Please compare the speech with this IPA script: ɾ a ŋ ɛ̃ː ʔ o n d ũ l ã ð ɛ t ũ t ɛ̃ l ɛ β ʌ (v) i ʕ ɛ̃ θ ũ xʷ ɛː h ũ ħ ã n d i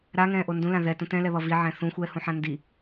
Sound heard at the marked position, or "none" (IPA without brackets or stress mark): v